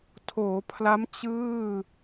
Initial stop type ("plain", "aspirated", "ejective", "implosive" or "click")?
aspirated